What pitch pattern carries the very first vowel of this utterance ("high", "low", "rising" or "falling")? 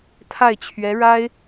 falling